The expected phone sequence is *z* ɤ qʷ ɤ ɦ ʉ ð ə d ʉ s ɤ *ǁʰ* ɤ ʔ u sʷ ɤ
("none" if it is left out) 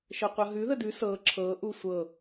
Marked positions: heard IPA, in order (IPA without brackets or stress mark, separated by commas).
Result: ʃ, ǁʰ